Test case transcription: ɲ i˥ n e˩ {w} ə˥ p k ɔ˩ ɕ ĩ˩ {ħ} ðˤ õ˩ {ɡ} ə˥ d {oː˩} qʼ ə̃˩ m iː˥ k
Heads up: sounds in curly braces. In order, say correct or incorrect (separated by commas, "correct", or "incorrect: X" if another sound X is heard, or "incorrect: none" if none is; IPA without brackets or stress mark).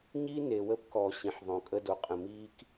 correct, correct, incorrect: kʼ, incorrect: o˩